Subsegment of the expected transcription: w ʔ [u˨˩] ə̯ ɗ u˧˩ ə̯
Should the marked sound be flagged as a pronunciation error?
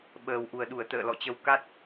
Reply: no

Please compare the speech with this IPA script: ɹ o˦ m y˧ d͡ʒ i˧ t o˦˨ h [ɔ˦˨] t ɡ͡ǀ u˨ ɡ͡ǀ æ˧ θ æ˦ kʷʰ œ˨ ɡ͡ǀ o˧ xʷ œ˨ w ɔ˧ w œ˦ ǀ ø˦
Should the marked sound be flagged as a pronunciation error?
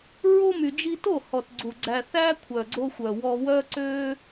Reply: yes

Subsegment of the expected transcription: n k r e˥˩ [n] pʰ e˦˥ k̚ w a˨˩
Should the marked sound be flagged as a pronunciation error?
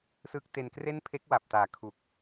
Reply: no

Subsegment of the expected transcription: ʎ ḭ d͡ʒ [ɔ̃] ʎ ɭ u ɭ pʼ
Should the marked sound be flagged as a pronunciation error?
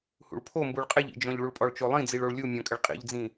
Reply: no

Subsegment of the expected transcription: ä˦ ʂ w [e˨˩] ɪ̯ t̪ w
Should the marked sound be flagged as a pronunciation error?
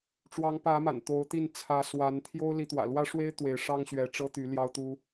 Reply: yes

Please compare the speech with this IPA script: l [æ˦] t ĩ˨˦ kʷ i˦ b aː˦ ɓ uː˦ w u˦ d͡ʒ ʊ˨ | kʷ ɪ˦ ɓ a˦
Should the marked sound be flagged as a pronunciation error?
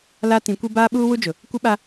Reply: yes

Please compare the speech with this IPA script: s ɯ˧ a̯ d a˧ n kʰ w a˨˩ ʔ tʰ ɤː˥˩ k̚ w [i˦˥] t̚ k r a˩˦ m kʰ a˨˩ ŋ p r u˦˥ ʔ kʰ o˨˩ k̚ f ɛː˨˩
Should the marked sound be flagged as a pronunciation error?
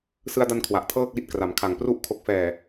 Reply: no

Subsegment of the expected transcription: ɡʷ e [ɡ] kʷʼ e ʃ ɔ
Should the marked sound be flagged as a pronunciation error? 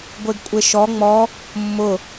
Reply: no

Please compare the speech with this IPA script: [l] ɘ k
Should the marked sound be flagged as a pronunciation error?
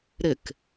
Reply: yes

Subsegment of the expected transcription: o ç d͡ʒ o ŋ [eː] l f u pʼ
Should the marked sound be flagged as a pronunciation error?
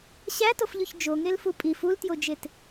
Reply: yes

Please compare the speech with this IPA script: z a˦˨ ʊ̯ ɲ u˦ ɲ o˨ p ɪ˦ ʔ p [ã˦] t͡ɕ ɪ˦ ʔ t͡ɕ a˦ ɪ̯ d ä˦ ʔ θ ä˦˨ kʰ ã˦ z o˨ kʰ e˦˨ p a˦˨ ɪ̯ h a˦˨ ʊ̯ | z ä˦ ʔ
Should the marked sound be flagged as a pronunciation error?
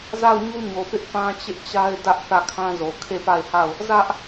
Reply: no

